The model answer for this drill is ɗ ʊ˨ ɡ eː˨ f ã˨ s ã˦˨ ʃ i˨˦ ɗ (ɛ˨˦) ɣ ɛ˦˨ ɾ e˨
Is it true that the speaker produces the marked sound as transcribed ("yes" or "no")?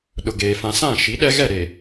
no